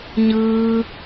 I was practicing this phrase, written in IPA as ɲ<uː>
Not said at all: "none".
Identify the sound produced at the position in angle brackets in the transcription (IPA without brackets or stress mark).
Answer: ɯː